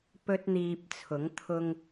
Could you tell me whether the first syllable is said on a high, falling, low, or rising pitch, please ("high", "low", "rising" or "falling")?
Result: high